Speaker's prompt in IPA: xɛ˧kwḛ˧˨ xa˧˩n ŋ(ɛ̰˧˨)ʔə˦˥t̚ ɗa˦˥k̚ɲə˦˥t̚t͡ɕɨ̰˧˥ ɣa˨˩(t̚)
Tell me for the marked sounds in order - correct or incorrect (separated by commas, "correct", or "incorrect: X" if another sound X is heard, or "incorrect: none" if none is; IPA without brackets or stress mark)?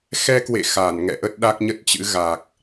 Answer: correct, incorrect: k̚